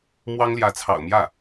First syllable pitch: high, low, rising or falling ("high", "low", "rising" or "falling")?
high